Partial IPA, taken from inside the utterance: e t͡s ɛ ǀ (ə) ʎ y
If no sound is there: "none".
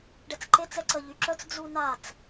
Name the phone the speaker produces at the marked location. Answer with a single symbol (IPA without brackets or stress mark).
ə